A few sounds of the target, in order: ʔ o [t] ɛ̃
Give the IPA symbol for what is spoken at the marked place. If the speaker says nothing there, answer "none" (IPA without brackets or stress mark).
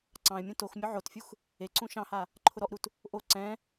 ǀ